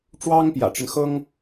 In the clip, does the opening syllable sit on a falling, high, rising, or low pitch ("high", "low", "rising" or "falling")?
high